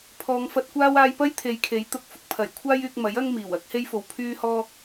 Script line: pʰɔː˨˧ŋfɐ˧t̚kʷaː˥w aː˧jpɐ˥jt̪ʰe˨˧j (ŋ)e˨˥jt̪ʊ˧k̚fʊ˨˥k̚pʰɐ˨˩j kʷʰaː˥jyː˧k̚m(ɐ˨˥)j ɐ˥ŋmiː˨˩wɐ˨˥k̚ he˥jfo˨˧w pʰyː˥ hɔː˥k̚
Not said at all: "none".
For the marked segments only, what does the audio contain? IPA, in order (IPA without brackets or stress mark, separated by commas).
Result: kʰ, ɐ˨˥